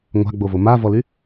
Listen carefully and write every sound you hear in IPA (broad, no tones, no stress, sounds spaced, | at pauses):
ŋʷ a̤ ɡ͡b o v o m a v ɔ l y